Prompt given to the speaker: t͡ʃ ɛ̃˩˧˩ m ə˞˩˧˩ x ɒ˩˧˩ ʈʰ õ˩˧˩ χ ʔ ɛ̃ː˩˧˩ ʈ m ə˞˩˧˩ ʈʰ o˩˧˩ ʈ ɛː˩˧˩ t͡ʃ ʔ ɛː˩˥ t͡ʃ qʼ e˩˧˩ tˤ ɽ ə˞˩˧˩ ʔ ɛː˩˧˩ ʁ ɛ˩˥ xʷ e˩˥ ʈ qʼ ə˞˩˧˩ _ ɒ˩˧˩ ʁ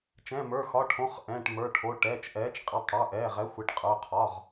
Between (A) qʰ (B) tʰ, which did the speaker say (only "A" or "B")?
A